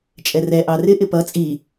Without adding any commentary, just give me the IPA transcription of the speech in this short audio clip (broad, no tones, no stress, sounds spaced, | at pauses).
t͡ʃʼ ɛ r ɛ ʔ ɑ r ɪ ʔ ɪ p ʌ t͡sʼ i